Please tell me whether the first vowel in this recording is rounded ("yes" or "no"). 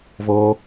yes